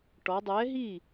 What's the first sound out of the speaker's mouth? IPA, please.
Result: ʈ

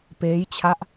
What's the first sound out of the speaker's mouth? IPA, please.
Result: p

